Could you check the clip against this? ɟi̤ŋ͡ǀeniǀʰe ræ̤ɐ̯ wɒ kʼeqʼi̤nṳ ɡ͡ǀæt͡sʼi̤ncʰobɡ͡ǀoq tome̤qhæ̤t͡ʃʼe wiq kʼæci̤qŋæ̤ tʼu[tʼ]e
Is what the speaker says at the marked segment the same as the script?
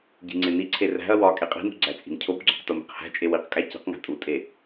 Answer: yes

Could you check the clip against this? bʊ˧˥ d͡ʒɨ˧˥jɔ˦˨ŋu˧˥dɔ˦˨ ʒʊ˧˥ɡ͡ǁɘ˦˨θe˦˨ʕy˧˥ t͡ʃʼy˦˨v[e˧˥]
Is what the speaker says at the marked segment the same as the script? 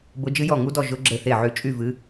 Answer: no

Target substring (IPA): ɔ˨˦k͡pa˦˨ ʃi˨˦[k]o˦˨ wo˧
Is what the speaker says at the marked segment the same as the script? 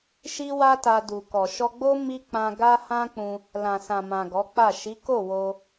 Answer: yes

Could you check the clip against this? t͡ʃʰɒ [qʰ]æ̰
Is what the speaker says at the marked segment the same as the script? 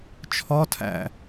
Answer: no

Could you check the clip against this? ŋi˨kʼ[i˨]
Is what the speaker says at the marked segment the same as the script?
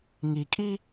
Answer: no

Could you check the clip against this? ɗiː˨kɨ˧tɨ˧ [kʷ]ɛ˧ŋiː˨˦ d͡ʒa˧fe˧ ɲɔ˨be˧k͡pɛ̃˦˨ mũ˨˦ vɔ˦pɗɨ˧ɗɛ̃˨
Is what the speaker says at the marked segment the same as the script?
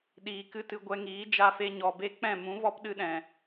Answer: no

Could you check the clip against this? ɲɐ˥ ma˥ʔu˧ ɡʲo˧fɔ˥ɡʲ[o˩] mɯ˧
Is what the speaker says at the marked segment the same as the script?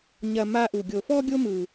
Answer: no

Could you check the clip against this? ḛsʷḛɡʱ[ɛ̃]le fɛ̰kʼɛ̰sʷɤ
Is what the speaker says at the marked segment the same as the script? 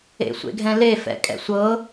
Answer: yes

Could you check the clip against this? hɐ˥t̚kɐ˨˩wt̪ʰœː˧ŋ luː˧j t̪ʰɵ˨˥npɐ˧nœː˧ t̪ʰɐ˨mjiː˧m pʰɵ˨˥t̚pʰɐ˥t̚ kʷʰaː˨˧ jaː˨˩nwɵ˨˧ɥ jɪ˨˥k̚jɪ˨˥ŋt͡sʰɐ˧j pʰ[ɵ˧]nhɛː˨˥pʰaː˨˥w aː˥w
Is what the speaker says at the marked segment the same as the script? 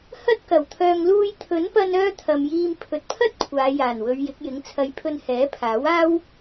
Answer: yes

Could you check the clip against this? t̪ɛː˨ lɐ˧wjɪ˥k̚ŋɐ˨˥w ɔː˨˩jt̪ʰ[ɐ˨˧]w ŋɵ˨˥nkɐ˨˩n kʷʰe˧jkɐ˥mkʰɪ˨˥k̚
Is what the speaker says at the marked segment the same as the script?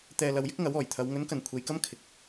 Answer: yes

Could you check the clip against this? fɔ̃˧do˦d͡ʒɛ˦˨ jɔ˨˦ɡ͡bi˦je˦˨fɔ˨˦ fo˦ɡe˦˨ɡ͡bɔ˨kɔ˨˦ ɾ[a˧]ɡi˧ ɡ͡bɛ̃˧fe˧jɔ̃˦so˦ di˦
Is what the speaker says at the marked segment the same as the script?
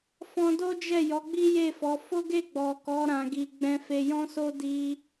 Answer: no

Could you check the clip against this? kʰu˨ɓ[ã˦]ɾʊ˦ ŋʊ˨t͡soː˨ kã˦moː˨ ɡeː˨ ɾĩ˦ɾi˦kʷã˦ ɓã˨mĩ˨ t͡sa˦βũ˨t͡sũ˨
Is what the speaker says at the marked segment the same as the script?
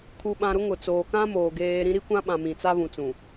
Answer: no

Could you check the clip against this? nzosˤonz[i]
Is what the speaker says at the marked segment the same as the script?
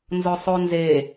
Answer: no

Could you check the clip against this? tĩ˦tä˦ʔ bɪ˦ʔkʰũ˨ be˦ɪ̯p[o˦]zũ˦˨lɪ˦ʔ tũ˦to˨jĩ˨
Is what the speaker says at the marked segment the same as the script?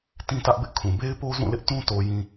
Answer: yes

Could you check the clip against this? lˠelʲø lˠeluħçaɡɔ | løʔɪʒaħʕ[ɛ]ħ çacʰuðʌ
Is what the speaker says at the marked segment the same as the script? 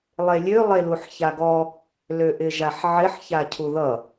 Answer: no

